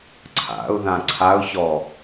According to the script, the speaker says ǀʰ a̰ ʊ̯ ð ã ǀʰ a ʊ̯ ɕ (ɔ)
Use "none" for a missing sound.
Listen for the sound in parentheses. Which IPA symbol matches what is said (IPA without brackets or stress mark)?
ɔ